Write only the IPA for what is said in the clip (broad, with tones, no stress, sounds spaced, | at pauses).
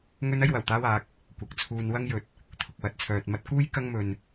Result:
ŋ ɵ˥ n ɐ˥ j w ɐ˨˩ w t̪ aː˥ w aː˨˥ k̚ | kʷ ɐ˨˥ k̚ t͡sʰ uː˧ n w ɐ˥ ŋ j ɵ˨˥ t̚ | t̪ʰ ʊ˧ k̚ w ɐ˨˥ t̚ t͡sʰ œː˨ t̚ m ɐ˥ t̚ k uː˥ j k ɐ˥ ŋ m ɵ˨ n